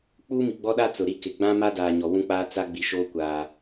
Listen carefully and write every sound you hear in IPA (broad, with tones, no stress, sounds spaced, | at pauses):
k͡p uː˦ m i˨ ɡ͡b ɔ˦ ɗ a˦ t͡s ʊ˨ ɾ i˦ k ɪ˨ ɡ͡b ã˦ m a˦ d aː˨ ɲ ɔ˨ w ũ˦ k͡p aː˦ t͡s a˦ ɡ͡b i˨ ʃ oː˦ kʷ aː˨